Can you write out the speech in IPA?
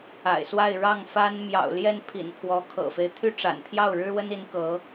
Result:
a̰˨˩ ɪ̯ s w a˥˧ ɪ̯ ɻ ɑ˥˩ ŋ f a˥ n m j ɑ̰˨˩ ʊ̯ l j ɛ˥˩ n pʰ ḭ˨˩ n pʰ w ɔ˧˥ kʰ ɤ̰˨˩ f e˦ ɪ̯ t̪ʰ y˥˩ ʈ͡ʂ a̰˨˩ n t̪ʰ j ɑ˥˩ ʊ̯ ɻ ɻ̩˥ w ə˥ n i˧˥ n k ɤ˧˥

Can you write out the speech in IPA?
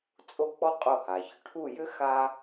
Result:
t͡sʼ o˥˩ k͡p ɔ˥ qʼ o˥˩ h a˩ ç ʏ˧ ʈʰ u˥˩ j ʏ˥ x a˥

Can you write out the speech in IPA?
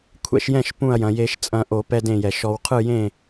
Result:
kʷʰ ɛ̰˧ ʃ j ɛ̃˥˩ ʃ p ũ˧˩ ɐ̯ j ɐ̃˩ j e˨˩˦ ʃ t͡sʼ ɐ̃˨˩˦ ʔ o˨˩˦ p ɛ˧ d ẽ˧˩ j ɛ˩ ʃ ɔ˨˩˦ w qʰ ɯ˥˩ j ẽ˥˩

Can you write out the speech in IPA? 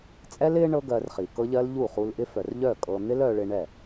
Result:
t͡sʼ ɛ˦ l ɪ˦ ɳ ɤ˦ ɡ ɜ˧ r χ i˨ k ɤ˦ ʎ ɜ˦ l ʎ u˦˨ χ u˧ l ʔ ɪ˦ f œ˨ r ʎ œ˦˨ kʼ ɤ˧ n̪ ɪ˦ l œ˧ ɭ ɪ˧ ɳ ɛ˦˨

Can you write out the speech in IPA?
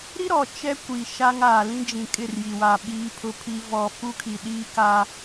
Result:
ɾ i˦ ɾ ɔ˨ t͡ʃ ɛ˦ kʷ i˨ ʃ a˦ ŋ aː˨ l ĩ˦ d͡ʒ ĩ˨ kʼ ɪ˦˨ r j i˨ w a˨ ɓ iː˦ pʰ ʊ˦ pʰ i˦ v ɔ˨ f u˦ kʰ i˨ ɗ iː˦ k a˦

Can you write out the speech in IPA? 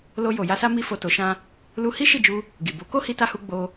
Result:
l o˧ j o˨ j a˧ s a˦ m i˦ f o˧ t o˧ ʃ ã˦ | l u˧ h i˦ ʃ i˦˨ d͡ʒ u˧ | ɡ i˨ b o˨˦ k o˦ h i˧ t a˧ h u˧ ɡ͡b o˧

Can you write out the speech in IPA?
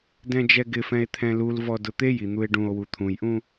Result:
d ɛ̃ d͡ʒ ɛ ɡ ɪ f ɛ̃ e̯ t̪ʰ ɛ̃ l u l v ɔ d ʊ t̪ e j i n̪ u e̯ ɖ ũ o̯ w u t̪ʰ ũ j ʔ ũ

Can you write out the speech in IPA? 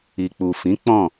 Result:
i˨ k͡p u˨ f ĩ˨˦ k͡p ɔ̃˦˨

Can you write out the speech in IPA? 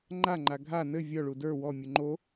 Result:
ŋ͡ǃ a ŋ͡ǃ a ɡʱ a n ɘ vʲ ɔ ɭ u d ə˞ w ɔ mʲ u ŋ͡ǃ o

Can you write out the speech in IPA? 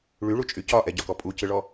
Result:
ɭ y ɭ u t͡ʃʼ y c ɒ ʔ ɛ ɟ ɒ k ɔ pʼ u c ɯ ɭ ɔ

